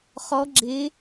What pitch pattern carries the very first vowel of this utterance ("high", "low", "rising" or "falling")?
rising